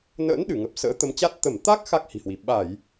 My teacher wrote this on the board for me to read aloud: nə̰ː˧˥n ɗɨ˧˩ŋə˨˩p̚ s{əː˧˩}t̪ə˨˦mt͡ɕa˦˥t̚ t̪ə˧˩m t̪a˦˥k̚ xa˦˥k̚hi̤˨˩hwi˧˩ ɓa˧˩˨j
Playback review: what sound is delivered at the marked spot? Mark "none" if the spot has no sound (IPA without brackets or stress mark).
ə̰ː˧˥